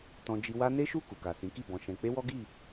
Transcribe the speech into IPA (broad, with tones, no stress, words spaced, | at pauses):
tɔ̃˧ d͡ʒi˧wa˦ ne˦ʃu˦˨ ku˨ka˨sĩ˨˦ki˦˨ bɔ̃˧ʃɛ̃˧ k͡pe˦wɔ˦ɡi˦˨